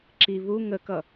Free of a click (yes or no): no